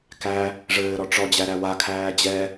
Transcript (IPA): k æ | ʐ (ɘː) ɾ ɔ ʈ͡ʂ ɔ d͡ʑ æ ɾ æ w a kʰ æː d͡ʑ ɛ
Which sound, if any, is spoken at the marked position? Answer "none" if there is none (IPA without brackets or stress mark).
ɘː